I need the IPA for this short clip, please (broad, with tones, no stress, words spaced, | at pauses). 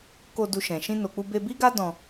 ko˧ du˧ʃɛ̃˨ ʃĩ˧no˨k͡pu˧be˧ bi˦ɡa˦ dɔ̃˧